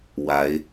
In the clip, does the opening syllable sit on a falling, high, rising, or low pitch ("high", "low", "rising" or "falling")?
rising